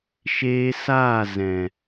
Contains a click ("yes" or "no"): no